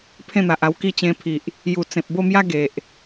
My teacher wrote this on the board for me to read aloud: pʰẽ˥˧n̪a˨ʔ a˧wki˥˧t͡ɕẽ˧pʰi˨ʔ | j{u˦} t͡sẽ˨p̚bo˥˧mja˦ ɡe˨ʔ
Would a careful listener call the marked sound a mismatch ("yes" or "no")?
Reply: yes